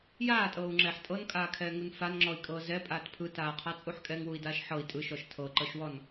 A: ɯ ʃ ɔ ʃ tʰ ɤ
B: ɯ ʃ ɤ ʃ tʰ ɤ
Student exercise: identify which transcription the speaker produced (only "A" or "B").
A